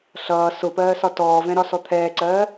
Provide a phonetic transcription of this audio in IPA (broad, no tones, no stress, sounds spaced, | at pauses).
ɬ ʌː s ʊ p ɜː s ɒ t ɔː v ɛ̃ ɾ ɒ s ɔ t̪ʰ ɛː ǀ ɜː